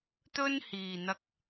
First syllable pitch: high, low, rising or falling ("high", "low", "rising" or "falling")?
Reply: high